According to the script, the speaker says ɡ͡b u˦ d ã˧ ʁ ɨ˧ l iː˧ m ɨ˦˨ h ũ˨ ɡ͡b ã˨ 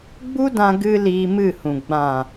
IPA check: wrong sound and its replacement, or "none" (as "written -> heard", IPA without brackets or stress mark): ʁ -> ɡ